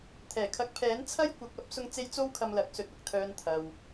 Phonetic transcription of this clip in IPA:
t̪ʰɛː˨˩kʰɐ˨˥k̚pʰɛː˨˥n t͡sʰɐ˥jkʷɐ˨˥k̚ɐ˨˥p̚ sʊ˧ŋt͡se˧j t͡so˥wkʰɐ˧mlɐ˨˥k̚ sɵ˨t̚ɐ˨k̚t̪ʰœː˨n t̪ʰɐ˨w

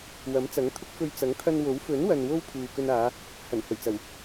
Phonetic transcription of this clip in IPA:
wɐ˨˥m t͡sɐ˨˥ŋt̪ʰʊ˥k̚fɵ˧ɥ t͡sɐ˨˥ŋt̪ʰɐ˧n wo˨˥w fɵ˨˥nwɐ˨n wo˥wpʰuː˨kɵ˧naː˨˧ | hɐ˨˩nhɵ˨˩ɥt͡sɐ˨˩w

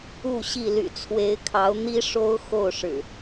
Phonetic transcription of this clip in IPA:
u˥˨ɕi˥˨ ly̰˨˩t͡sʰwe˨˦ɪ̯kʰɑ˨˦ʊ̯ n̪i˦ ʂo˦ʊ̯xo˥˨ʊ̯ʂɻ̩˨˩

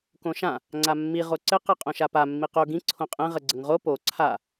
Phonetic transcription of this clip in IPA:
kõʃã | ŋ͡ǀamːi ʁoǀɘ qɛqʼõʃapa mːiqo ɡĩ ǀʰõqʼɛ̃ ʁəɡ͡ǀəŋʁo po ǀʰa

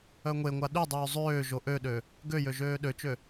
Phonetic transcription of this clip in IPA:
œŋʷeŋʷa ɗydˤyː zˤøː ʒoʔøɗø | ɡøjø ʒøːɗøt͡ʃø

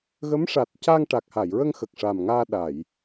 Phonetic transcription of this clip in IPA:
ɣə˧˥mʂa˨˩t̚ ca˧ŋʈa˨˩k̚ha˨˩˨jɹə˧ŋ xə˨˩k̚ʂa˨˩mŋaː˧ ɗa˨˩˨j

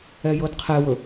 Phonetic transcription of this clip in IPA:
ɛjɤdqʰewɵ

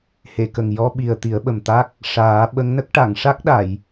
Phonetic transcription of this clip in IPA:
he˨˩˨kə˨˩ŋ jɔ˧ɓi˨˩ə̯ t̪i˨˩˦ə̯ɓə˨˩mt̪a˦˥k̚ | ʂaː˨˩˦ ɓə˧˥ŋnə˦˥k̚ ʈa˨˩˨ŋʂa˦˥k̚ɗa˨˩˨j

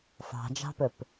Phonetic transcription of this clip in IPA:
fɑ̤d͡ʒɑ̤pɵp

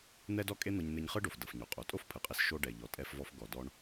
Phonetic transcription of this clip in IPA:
n̪ɛ˥dɔ˥kʼe˥n̪ɤ˧ɲ n̪e˧ɲχɯ˥ɖo˩f dɤ˩fɲo˩qʼo˩ tʼo˥fpʰɯ˩qʼe˧s ʃo˧ ɖɛ˩ʎɔ˩ tʼɛ˧fvɔ˧f ɡɔ˩dɔ˧ɳ

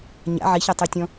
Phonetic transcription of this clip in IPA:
ɲa̰ ʕiçatˤitʲɔ̃

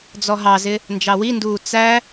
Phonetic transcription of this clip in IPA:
d͡zɔɦɑzɪ | nd͡ʒɑwinduː t͡sæ

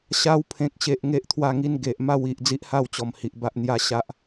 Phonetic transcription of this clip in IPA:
ɕa˧wpʰẽ˨k̚ɕe˨ʔ ŋe˦ʔt̪ʰwa˥˧ŋi˦n ɡe˨ʔ ma˥˧wi˨ʔ d͡zi˦ʔha˥˧wt͡ɕɔ˨˩m hi˨ʔba˦ʔn̪ja˦ ɕa˦ʔ

